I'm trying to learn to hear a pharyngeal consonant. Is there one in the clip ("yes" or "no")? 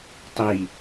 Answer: no